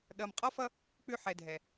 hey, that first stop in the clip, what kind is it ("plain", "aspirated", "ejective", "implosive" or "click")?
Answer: implosive